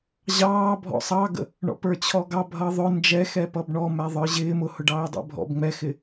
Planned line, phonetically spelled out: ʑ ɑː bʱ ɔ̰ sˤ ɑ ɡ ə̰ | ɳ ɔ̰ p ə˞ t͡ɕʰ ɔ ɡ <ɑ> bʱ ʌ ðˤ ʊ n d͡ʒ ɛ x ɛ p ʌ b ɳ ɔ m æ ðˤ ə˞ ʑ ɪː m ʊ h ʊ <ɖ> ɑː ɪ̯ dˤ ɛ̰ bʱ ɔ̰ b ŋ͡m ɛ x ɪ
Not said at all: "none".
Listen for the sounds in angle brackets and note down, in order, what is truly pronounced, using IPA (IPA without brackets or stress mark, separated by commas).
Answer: ɑ, ɖ